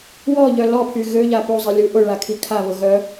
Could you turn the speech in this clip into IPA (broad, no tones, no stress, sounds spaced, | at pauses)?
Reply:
w ɔ ʎ œ l ɔ pʰ y ɣ ø ʎ a p u zˤ i lʲ u ʔ ʊ ɭ a kʰ i kʰ a β ʊ ɣ œ